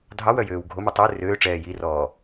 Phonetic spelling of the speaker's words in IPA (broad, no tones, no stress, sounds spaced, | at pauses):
dʱ ɑ w œ j øː w ɡʱ o m u tˤ ø r øː ʈ͡ʂ ɛː j i r ɔː